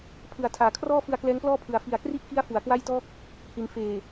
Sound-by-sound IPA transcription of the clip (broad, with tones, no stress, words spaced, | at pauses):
pʰɯ˨˩a̯ tʰaː˨˩kʰrɔː˥˩fɯ˧a̯ klɛː˦˥ŋplɔː˥˩pʰɯ˨˩a̯ fi˨˩a̯kri˥˩ʔki˦˥a̯ fu˩˦a̯kwa˥˩jtɔː˥˩k̚ | hi˩˦n feː˨˩